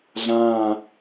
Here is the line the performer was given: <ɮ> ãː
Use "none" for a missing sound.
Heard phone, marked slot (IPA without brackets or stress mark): ɮ